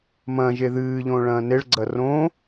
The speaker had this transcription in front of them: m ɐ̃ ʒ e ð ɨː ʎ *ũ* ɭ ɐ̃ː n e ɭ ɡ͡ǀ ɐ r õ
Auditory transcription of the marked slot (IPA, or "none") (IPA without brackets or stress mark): õ